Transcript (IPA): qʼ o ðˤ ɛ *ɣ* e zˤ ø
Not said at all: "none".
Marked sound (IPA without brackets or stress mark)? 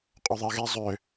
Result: ɣ